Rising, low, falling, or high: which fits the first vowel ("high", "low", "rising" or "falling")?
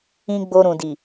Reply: high